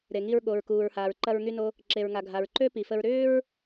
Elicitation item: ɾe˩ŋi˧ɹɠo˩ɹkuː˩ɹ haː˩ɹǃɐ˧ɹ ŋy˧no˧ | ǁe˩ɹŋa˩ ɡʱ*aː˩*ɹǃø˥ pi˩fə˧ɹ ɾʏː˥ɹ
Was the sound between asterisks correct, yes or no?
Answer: no